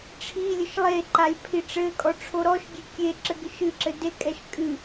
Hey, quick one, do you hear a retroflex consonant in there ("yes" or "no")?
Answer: yes